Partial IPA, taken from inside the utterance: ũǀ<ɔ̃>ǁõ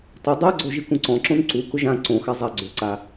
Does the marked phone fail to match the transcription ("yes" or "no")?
no